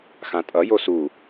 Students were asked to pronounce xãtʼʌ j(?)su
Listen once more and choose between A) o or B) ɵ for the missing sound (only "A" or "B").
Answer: A